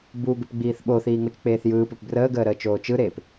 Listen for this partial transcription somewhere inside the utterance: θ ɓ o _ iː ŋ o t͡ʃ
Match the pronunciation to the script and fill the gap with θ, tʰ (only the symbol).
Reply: θ